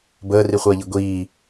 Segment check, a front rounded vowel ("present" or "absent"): absent